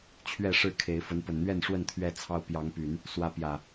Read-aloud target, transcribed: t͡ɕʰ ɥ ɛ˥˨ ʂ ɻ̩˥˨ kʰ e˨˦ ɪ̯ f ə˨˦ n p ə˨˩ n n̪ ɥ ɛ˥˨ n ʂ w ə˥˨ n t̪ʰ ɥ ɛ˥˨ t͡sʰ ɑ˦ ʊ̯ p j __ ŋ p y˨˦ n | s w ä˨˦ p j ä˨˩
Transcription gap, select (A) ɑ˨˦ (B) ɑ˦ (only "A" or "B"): A